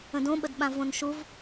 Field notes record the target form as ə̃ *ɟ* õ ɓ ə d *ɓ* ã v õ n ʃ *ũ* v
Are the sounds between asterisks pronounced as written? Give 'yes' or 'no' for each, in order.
no, yes, no

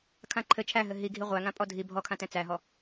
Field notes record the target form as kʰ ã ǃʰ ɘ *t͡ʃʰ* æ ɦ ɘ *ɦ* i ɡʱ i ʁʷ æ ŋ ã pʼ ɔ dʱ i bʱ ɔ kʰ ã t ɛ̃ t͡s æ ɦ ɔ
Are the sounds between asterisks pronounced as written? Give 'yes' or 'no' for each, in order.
yes, yes

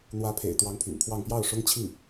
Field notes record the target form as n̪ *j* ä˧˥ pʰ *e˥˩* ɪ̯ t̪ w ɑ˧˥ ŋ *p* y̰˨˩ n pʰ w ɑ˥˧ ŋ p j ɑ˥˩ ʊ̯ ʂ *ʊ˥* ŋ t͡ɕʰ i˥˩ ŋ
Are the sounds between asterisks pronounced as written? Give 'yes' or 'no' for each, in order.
no, no, no, yes

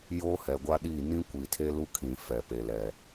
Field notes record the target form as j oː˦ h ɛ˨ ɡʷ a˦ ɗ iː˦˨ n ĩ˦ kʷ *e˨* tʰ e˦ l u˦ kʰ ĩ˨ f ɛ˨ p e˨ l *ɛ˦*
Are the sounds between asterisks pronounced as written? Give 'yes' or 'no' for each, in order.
no, no

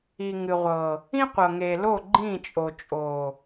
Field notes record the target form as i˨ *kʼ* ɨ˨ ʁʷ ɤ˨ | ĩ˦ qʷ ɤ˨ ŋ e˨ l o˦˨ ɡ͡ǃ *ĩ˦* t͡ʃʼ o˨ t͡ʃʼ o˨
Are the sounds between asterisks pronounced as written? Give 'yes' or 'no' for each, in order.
no, no

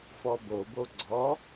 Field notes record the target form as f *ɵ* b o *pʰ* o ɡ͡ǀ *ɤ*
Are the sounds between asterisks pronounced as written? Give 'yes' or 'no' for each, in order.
no, no, no

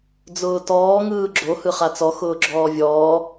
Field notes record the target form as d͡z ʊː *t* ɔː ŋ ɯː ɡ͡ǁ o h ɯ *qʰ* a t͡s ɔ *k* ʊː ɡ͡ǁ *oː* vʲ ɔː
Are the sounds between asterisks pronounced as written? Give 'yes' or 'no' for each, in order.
yes, no, no, no

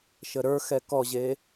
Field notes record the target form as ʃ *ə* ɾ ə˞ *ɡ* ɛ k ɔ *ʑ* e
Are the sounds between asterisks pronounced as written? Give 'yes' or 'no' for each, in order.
yes, no, yes

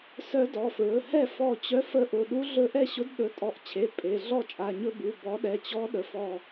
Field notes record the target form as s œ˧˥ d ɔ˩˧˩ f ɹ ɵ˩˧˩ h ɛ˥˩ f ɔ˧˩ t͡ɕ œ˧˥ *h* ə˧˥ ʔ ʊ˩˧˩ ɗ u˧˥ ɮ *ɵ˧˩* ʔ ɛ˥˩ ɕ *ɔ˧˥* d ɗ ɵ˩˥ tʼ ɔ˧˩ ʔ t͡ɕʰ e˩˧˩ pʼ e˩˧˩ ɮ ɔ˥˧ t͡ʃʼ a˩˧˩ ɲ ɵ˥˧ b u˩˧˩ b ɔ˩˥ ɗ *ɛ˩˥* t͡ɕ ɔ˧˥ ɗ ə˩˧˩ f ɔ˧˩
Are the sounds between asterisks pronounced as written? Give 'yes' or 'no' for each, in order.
no, no, no, no

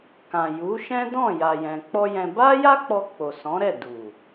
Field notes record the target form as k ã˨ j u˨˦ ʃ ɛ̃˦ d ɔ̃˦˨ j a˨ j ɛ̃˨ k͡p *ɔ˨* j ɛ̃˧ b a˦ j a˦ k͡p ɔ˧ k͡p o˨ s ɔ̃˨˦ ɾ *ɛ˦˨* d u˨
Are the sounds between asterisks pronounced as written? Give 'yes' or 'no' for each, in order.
no, yes

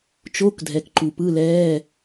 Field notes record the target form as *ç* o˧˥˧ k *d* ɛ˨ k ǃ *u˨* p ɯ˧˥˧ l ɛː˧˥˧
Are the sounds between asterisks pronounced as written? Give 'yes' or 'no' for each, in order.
no, no, yes

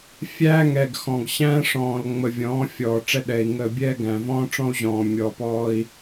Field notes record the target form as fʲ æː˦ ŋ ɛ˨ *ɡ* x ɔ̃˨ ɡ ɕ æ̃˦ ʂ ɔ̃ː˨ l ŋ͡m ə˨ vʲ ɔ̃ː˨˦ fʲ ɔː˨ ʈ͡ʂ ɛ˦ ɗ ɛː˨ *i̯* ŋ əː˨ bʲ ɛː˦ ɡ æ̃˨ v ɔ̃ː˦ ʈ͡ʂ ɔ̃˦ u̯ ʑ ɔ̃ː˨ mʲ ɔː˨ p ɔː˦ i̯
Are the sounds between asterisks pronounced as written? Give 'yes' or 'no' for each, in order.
yes, yes

